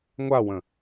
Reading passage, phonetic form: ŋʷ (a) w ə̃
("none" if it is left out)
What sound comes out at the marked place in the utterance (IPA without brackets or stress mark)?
a